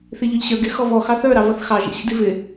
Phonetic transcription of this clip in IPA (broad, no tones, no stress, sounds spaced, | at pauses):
θ i ʎ ʊ ʎ ɕ ə˞ ɡ ɪ x ɔ v ɔ x ɑ θ ə˞ ɾ ɑ v ʌ θ x ɑ ʒ ḭ ɕ ḭ d i v ɪ